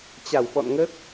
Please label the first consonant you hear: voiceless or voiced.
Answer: voiceless